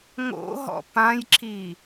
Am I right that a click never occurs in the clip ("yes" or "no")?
no